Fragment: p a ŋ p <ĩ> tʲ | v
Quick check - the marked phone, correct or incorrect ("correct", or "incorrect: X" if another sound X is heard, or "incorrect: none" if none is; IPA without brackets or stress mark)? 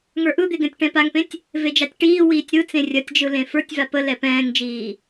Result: incorrect: ẽ